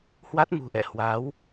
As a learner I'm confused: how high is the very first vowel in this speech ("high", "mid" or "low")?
low